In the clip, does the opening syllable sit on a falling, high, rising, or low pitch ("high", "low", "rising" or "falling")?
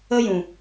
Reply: high